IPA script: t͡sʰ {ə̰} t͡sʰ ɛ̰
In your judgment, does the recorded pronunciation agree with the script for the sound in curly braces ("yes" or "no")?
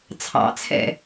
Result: no